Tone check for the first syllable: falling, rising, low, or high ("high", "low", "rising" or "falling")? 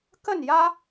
falling